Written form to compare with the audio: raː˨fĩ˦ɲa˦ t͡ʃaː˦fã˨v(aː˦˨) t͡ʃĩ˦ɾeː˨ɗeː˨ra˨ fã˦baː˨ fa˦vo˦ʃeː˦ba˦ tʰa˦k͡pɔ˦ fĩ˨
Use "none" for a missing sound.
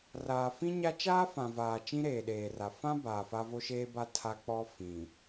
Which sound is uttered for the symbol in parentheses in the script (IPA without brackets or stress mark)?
aː˨